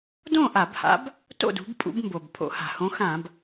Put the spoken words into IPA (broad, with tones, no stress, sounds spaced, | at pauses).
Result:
d õ˥˨ ʔ a˧˩˧ b h a̰˨˦ b | t o̰˥˨ d ṳ˨˦ b pʼ ṵ˨˦ b m b o˩ b pʰ o̰˧˩˧ h a̤˩ h õ˨˦ x ã˧˩˧ b